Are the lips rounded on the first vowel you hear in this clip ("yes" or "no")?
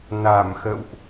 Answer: no